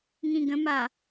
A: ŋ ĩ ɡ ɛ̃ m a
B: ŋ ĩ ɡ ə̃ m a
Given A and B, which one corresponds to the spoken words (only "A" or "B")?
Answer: B